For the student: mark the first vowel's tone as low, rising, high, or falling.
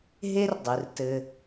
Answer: high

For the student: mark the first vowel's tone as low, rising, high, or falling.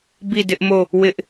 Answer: falling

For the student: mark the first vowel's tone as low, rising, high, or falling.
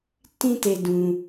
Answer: high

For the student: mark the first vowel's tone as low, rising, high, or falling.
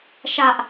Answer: high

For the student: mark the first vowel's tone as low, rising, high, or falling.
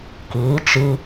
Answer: rising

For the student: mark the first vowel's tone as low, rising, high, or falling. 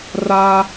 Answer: high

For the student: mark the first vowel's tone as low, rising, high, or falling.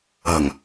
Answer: low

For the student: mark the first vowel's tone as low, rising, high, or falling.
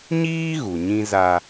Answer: high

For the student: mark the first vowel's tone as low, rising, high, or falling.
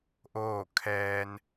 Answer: falling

